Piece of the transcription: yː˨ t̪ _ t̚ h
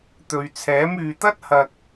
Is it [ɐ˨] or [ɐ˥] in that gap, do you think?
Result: ɐ˥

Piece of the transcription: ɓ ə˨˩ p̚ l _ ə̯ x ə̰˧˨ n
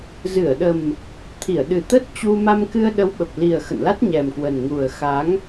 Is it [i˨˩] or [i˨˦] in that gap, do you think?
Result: i˨˩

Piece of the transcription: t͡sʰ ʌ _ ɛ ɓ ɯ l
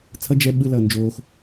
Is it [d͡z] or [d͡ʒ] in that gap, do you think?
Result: d͡ʒ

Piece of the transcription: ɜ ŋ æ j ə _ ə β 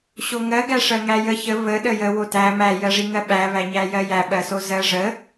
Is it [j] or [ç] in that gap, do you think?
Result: ç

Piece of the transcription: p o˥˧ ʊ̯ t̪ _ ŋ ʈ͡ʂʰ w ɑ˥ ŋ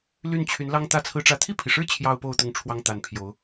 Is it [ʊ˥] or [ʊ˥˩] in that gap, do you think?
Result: ʊ˥˩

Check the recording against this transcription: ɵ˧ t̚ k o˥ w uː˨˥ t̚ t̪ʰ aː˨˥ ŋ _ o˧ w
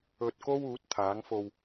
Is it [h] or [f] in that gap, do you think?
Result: f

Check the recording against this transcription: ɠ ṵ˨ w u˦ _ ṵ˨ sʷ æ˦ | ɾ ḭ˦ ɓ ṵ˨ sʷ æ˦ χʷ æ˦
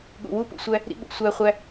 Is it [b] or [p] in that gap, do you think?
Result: p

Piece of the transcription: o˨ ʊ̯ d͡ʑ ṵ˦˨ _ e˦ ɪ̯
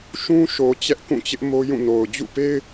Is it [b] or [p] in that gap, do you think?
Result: p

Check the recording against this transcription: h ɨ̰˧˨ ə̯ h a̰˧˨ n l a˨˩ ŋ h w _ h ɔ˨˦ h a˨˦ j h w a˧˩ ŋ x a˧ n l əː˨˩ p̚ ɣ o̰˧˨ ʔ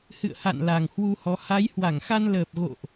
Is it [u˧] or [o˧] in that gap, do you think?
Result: u˧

